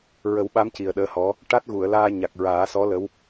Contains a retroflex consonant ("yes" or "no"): yes